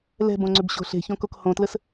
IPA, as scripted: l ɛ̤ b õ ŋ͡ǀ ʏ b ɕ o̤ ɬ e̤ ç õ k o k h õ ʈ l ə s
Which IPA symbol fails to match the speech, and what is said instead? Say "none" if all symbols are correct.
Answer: ʈ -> t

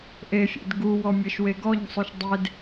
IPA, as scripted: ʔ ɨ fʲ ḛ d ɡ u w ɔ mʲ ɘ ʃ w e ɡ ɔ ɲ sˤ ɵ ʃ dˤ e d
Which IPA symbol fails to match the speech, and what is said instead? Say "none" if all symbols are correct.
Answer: ɨ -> e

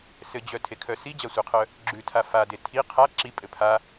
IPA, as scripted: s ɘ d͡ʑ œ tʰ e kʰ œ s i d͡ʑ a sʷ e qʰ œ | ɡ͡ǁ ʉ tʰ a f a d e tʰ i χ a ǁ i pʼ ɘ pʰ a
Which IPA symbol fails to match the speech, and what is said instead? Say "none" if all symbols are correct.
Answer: χ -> qʰ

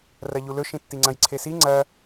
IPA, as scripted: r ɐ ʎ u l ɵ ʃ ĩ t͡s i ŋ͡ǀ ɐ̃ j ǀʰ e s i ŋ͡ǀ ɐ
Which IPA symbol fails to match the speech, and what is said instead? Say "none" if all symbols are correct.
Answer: t͡s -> tː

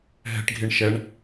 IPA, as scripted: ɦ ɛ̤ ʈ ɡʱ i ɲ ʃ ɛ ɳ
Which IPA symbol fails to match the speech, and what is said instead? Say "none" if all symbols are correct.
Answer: ɲ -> ɳ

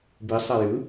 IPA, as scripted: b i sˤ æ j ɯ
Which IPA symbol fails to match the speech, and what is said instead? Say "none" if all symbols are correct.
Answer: none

